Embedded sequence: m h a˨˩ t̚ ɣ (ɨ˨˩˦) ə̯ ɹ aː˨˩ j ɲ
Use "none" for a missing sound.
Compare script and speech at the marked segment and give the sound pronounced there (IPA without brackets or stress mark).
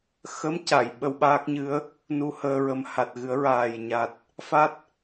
ɨ˨˩˦